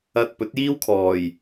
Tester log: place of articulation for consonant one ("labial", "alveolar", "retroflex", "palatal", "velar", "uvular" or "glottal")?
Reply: alveolar